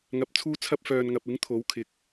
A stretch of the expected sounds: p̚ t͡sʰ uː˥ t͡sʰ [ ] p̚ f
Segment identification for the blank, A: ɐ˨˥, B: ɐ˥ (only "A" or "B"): B